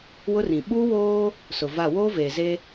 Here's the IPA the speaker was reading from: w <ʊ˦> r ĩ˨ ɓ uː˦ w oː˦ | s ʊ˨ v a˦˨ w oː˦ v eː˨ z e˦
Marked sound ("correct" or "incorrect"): correct